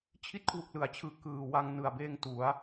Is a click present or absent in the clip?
absent